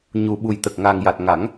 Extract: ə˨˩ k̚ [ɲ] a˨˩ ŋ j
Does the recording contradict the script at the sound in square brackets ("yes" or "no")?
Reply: yes